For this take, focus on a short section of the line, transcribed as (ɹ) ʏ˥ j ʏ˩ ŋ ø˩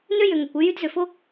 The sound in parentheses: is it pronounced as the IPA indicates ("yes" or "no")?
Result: no